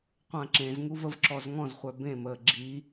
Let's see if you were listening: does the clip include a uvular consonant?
yes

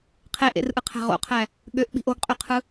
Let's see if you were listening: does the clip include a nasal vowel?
no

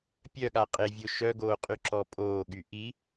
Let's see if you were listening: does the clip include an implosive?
yes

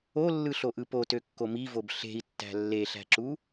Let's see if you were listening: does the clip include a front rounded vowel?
yes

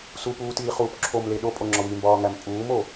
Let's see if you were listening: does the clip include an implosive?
yes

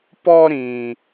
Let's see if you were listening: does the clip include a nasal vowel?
yes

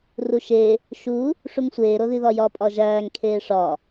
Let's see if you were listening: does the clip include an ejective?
yes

